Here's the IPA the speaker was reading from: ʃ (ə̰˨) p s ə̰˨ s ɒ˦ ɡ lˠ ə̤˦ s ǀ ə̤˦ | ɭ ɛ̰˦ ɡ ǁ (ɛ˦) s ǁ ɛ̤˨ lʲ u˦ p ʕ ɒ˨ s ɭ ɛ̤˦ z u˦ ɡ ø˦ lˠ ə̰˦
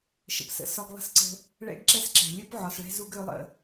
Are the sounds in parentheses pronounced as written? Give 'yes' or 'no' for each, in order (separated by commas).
yes, yes